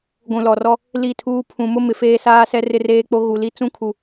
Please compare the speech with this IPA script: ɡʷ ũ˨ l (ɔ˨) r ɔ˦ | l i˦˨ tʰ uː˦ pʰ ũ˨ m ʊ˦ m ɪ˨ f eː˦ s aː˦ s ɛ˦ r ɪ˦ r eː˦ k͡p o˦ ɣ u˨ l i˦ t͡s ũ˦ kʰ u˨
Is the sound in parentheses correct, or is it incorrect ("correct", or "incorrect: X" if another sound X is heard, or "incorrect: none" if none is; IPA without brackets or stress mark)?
correct